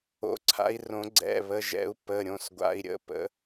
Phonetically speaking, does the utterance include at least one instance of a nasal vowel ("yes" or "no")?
yes